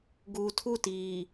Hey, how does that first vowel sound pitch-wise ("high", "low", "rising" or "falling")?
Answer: low